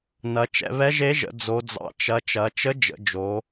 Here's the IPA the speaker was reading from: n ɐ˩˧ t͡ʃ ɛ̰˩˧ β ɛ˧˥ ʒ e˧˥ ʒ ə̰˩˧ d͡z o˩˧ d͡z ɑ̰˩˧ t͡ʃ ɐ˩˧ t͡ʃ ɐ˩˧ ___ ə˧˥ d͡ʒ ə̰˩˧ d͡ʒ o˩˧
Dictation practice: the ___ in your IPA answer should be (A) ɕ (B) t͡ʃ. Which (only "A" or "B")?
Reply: B